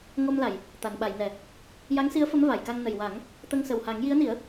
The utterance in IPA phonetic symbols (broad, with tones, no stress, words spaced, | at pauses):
ŋo˧mla˨˩˨j | t̪a˨˩˨nɓa˨˩˨jnɛ˨˩˨ | ja˧˥ŋsi˧˥ə̯ fə˧˥mva˨˩˨jka˧ŋ nə˨˩jwa˨˩˦ŋ | t̪ə˧ŋsə˨˩wha˨˩˦ŋ ji˧˥ə̯ni˨˩˦ə̯